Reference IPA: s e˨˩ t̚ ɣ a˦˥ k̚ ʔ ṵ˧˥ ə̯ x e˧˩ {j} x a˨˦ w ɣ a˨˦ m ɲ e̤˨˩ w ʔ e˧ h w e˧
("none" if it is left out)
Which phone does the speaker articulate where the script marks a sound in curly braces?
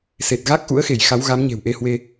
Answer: j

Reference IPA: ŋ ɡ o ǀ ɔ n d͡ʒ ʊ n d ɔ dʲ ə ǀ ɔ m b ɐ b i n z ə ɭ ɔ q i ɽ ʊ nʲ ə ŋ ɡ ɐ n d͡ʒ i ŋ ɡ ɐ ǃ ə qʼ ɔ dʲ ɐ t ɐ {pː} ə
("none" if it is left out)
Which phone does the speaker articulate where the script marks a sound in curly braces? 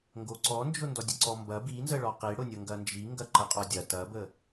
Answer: b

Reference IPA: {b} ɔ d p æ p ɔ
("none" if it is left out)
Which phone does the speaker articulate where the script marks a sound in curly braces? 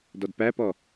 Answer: d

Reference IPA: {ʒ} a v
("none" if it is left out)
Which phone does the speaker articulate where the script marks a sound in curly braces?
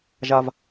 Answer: ʒ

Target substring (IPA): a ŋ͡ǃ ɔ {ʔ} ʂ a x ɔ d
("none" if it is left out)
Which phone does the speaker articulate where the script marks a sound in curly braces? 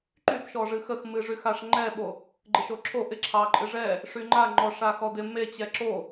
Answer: none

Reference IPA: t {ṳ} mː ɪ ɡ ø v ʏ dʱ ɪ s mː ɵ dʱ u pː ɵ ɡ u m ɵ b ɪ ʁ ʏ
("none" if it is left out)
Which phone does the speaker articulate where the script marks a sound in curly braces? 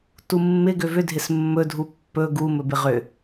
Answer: u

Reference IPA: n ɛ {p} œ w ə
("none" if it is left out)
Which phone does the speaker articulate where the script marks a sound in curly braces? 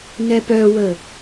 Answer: p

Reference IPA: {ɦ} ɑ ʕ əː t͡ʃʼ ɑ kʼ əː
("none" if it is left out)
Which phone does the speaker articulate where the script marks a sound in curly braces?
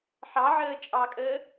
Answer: ħ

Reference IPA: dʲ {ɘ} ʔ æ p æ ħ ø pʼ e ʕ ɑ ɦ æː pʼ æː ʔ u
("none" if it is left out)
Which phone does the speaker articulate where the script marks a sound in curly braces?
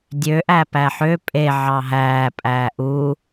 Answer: ø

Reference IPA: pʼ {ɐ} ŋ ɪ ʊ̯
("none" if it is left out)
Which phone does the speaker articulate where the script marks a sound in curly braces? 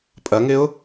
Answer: ɐ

